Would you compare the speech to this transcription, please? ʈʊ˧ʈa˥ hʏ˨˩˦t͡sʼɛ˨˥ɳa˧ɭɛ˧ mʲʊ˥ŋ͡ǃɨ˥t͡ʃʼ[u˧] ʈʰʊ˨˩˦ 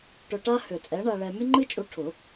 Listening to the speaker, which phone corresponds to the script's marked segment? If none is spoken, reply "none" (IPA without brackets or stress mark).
u˧